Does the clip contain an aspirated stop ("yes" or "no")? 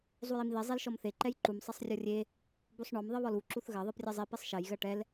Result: no